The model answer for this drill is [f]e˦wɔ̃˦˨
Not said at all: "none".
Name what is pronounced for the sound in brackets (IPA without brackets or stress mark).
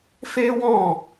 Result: f